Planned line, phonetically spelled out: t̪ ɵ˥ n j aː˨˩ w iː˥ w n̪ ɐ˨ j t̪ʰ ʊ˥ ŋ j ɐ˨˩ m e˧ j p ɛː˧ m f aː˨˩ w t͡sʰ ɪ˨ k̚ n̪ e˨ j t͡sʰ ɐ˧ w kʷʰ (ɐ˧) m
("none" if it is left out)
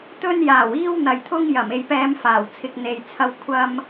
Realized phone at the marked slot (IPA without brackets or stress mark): ɐ˧